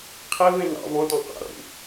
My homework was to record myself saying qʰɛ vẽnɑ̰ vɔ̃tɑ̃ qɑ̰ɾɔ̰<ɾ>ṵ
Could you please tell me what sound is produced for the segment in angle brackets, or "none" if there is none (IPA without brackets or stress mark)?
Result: ɾ